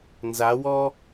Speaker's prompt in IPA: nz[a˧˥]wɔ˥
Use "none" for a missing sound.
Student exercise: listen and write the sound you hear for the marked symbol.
a˧˥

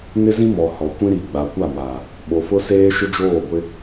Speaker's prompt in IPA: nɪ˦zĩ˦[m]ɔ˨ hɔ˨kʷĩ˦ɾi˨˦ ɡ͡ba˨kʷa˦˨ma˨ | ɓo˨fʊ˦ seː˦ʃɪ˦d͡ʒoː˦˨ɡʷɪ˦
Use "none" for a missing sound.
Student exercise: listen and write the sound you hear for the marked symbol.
m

